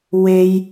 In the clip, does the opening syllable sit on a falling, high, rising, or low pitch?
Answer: high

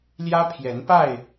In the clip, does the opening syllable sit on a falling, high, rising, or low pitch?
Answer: high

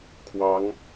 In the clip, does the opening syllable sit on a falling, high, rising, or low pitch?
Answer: rising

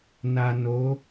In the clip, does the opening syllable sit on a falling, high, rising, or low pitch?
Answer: low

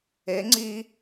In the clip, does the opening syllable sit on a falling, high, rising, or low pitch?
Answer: rising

